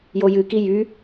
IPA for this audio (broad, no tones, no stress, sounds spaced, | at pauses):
j o j ɨ k i j y